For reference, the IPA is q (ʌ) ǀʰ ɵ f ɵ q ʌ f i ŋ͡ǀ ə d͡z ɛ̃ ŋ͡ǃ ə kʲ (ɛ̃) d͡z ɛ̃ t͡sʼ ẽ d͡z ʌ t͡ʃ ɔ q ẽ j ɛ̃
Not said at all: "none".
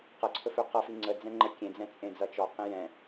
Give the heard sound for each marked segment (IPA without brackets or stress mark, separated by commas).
ʌ, ẽ